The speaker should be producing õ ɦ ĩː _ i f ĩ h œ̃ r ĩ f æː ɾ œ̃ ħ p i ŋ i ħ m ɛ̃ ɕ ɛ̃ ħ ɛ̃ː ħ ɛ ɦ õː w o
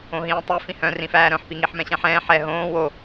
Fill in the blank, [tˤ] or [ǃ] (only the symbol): tˤ